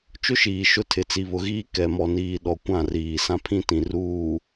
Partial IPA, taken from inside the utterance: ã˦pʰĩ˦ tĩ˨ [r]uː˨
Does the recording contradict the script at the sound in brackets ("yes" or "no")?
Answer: no